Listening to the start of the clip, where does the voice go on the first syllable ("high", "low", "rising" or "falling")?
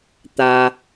low